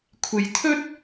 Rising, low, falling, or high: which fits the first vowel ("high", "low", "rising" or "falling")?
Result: low